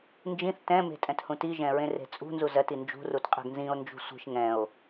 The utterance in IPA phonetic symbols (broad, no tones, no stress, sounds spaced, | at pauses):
n d͡ʒ ĩ θ t ɛ̃ m e̤ tʼ ɛ̃ t h ũ t i ʒ ɛ̃ ɹ ẽ r e̤ t͡sʼ ṳ n z u z ɜ t i n d͡ʒ ṳ r u t qʼ ɛ̤ ɡ n z ĩ o̯ n d͡ʒ ṳ sʷ i̤ ʃ ŋ ɛ̃ o̯